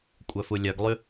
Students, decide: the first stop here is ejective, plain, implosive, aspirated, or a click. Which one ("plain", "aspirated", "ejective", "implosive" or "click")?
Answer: ejective